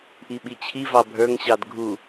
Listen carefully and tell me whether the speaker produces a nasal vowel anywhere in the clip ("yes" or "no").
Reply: no